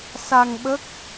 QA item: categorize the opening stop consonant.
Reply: implosive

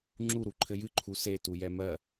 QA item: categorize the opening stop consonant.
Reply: click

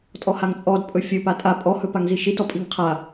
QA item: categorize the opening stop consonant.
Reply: ejective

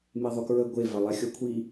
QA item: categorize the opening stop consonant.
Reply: plain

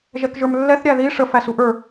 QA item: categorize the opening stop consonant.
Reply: plain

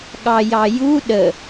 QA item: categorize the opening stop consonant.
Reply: implosive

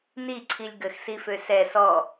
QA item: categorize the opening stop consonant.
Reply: click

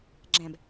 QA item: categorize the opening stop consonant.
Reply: click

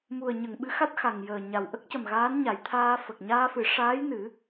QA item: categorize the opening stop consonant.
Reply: implosive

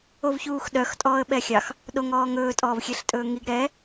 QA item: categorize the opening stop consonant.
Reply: implosive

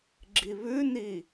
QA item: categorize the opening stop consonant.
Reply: click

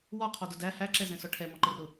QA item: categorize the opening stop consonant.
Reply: aspirated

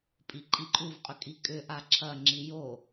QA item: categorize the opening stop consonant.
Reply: ejective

